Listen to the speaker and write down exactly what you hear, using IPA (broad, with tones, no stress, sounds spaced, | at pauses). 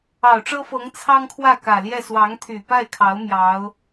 ɑ˨˩ ʊ̯ ʈ͡ʂ ɤ˥ f ɤ˧˥ ŋ t͡sʰ ɑ˥ ŋ kʰ w ä˥˩ k ä˨˩ l j ɛ˥˩ s w ɑ˧˥ ŋ t̪ʰ y˨˩ p a˥˩ ɪ̯ kʰ ɑ˧˥ ʊ̯ m j ɑ˧˥ ʊ̯